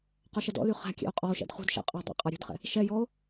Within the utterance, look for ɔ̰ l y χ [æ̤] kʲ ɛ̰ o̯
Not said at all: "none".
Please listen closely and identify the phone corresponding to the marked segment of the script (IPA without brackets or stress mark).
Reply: æ̤